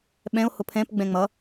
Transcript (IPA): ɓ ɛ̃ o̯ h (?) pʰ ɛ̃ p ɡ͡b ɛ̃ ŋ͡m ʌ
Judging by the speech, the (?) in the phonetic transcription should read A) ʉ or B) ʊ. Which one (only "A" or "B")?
B